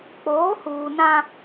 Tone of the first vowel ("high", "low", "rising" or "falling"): rising